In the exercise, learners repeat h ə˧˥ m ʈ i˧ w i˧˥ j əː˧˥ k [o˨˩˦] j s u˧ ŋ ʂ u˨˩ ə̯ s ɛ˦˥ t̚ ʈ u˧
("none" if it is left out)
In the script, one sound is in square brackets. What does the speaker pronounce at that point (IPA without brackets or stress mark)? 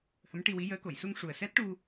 o˨˩˨